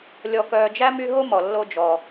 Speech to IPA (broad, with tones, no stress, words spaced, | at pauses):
lʲɔ˨kœː˨d͡ʒæ˥ my˦ɦo˥mɔ˩ lːo˥d͡ʒɔ˨